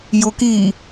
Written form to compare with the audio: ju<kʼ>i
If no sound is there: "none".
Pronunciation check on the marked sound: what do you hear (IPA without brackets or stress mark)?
k